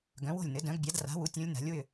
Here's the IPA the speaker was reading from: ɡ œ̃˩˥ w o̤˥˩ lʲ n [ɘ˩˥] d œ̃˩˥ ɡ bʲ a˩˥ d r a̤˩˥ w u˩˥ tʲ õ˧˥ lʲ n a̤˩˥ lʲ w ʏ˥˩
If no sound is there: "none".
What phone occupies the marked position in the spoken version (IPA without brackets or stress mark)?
ɘ˩˥